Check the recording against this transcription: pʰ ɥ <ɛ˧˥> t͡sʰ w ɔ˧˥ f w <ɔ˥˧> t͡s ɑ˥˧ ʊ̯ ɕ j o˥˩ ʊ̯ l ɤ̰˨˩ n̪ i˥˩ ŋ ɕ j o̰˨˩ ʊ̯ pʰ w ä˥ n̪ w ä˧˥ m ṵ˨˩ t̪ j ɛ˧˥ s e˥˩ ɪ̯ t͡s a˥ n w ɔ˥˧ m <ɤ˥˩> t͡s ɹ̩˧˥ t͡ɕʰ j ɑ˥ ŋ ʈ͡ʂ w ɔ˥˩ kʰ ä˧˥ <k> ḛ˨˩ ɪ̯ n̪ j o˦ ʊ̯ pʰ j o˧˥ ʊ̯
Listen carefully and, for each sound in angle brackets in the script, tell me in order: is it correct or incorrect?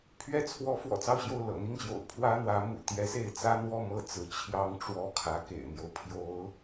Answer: incorrect: ɛ˥˩, incorrect: ɔ̰˨˩, correct, correct

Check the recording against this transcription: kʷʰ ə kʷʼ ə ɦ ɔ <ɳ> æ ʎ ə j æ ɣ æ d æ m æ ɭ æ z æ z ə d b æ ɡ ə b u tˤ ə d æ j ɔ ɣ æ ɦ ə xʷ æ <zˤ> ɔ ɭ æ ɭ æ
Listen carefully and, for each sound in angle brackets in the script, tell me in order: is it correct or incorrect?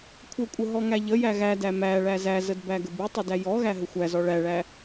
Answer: incorrect: ŋ, incorrect: z

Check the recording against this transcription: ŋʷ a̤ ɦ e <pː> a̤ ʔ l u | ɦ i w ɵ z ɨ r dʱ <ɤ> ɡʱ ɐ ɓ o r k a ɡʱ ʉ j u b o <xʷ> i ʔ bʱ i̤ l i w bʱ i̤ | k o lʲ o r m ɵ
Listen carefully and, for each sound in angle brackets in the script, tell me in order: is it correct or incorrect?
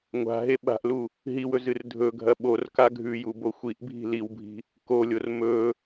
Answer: incorrect: ɓ, incorrect: ɵ, correct

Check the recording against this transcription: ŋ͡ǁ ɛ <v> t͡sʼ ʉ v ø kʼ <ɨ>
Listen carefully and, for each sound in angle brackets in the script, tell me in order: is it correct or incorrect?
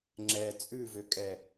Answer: incorrect: none, incorrect: ɛ

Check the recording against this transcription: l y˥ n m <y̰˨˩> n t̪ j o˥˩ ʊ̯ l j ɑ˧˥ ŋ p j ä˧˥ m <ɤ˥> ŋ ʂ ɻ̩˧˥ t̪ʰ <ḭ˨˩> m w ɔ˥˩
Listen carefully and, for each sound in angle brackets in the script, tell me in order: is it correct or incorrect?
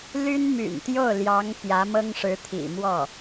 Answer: correct, correct, correct

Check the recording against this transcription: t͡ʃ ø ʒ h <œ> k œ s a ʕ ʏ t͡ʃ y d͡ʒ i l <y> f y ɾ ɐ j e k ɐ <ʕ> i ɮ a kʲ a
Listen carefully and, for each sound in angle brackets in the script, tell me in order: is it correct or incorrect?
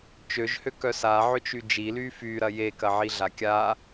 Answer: incorrect: ø, correct, correct

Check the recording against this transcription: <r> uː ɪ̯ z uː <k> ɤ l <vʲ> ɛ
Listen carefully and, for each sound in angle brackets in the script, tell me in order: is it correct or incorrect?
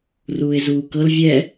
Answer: correct, correct, correct

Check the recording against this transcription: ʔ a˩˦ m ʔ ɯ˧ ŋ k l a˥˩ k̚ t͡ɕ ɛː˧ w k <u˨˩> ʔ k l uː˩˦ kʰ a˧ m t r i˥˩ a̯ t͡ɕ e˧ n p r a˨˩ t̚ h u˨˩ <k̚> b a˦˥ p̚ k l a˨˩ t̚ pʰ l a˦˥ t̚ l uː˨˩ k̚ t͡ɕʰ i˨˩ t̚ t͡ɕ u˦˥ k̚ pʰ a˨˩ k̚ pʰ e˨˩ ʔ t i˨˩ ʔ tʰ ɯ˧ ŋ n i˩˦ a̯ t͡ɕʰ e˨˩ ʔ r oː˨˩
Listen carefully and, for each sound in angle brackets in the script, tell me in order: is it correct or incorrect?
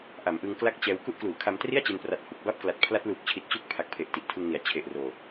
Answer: incorrect: u˦˥, correct

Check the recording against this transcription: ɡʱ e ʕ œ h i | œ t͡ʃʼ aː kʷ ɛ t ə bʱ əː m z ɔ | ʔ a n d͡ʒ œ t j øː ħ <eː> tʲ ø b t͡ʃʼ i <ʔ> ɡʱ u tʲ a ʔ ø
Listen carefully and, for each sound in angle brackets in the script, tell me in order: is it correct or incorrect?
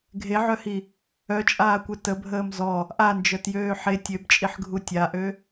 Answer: incorrect: e, incorrect: ħ

